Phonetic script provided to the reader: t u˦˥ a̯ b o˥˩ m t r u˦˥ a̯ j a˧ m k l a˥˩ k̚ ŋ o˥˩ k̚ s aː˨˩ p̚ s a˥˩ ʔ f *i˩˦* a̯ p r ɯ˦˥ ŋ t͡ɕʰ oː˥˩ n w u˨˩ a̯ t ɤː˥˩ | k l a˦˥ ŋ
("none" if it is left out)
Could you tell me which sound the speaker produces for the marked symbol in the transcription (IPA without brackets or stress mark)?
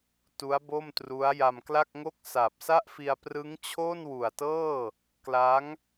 i˧